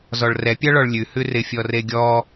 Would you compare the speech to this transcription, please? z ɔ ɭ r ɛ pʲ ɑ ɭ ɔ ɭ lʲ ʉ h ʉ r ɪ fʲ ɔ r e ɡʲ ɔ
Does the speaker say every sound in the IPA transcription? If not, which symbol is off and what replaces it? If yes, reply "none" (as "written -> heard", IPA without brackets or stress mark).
none